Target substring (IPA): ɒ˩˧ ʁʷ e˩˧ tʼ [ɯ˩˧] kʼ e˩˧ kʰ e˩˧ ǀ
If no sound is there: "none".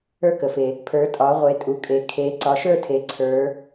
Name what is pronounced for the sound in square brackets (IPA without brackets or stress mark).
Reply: u˩˧